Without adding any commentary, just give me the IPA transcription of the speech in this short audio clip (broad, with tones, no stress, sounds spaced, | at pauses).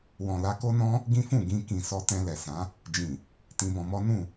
w ɔ̃˨ l a˧ k o˦ n ɔ̃˦ | ɡ ĩ˦ f ũ˦˨ ɡ ĩ˧ k ĩ˨ s ɔ˧ t ɛ̃˧ l ɛ˨ s ã˨˦ | d͡ʒ ĩ˨ | t ĩ˧ b ɔ̃˧ m ɔ˦ n ũ˦˨